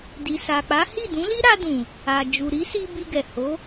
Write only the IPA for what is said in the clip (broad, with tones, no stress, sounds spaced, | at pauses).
d i˨ s a˨ k͡p a˨˦ h i˦˨ d ũ˨˦ l i˦ ɾ a˧ d ũ˨ | a˨ d͡ʒ u˨ ɾ i˨˦ s i˧ b i˧ ɡ ɛ˨ h o˨˦